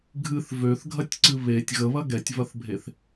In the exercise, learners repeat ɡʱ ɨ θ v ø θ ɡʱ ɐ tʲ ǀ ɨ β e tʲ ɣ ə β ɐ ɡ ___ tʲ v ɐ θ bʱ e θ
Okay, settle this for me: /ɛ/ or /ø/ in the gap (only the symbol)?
ɛ